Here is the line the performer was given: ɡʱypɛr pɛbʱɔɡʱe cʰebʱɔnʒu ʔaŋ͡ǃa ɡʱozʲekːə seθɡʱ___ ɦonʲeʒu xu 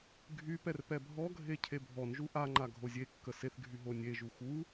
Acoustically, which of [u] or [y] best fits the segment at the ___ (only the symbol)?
y